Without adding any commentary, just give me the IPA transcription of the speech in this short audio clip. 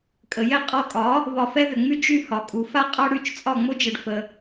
kʼ ə˩ j ɛ˥ qʼ ɔ˧ kʼ ɒ˩˥ | β ɒ˧ f ɛ˥ ð ʏ˩ ŋ͡m y˥ d͡ʒ y˥˩ h ɒ˩ kʼ u˩ f a˥ qʼ ɒ˥ ɽ y˥˩ t͡ʃ t͡sʼ ɒ˥˩ ŋ͡m o˥ d͡ʒ ə˩ ɖ f ə˩

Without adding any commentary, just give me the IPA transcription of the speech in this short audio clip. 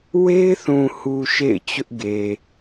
w e˦ ɪ̯ θ ũ˨ h u˨ ʃ ḛ˦˨ ɪ̯ t͡ɕ ʊ˦ ʔ ɡ e˨

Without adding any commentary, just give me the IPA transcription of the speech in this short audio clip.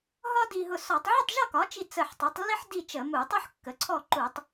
ɦ ɒ˥ d i˧ ɦ ʊ˧ s ɔ˧˩˧ tˤ ʕ ə˥˨ tˤ ʒ ɒ˥˨ k ɒ˩˥ t͡ʃ i˧˩ t͡s ə˧˩ ħ tˤ i˩˥ tˤ lː i˥ ħ d i˥˨ t͡ʃ ə˧˩˧ m u˧˩˧ tˤ u˥ ħ kː ə˩˥ ǀʰ ɔ˥˨ ǃ u˧˩˧ tˤ

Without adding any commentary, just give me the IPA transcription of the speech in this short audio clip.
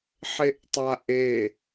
ħ e ʔ tˤ a ʔ e

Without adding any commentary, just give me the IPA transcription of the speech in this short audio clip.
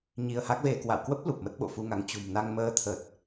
ɲ i˧ ə̯ h a˦˥ k̚ v e˧ k w a̰˧˨ w k w ə˦˥ p̚ l u˨˩ p̚ m ə˦˥ t̚ ɓ o̰˧˨ f u˧ ŋ a˨˦ ŋ t͡ɕ ṳ˨˩ m n a˧ ŋ m əː˧ t̪ʰ ə˨˩ t̚

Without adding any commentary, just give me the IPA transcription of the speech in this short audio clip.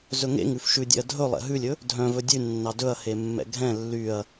z ɵ ŋ ḛ ŋ ʉ f ʃ ʉ dʲ ɛ̰ ɐ̯ dʱ ɵ lˠ ɛ̰ ɦ ʉ lʲ ɵ | dʱ œ̃ v ɵ dʲ ʉ nː ɑ d ɵ ɐ̯ h e mː ɛ̰ ɡʱ ɛ̃ lː y ɐ̯

